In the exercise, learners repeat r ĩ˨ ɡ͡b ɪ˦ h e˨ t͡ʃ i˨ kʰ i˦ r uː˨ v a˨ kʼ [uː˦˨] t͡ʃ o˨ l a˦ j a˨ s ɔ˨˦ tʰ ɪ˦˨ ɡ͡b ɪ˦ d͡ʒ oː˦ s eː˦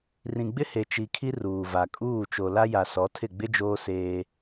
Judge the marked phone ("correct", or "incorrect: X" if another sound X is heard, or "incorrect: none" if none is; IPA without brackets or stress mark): correct